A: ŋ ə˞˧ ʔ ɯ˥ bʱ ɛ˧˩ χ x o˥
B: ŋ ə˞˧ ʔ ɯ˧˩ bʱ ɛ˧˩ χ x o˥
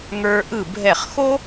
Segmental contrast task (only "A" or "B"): B